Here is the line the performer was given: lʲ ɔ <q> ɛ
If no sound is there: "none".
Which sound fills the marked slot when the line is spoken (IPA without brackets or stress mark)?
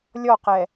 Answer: q